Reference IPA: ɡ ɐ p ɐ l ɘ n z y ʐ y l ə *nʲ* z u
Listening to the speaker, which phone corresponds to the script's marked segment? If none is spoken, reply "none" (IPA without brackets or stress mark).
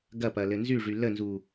n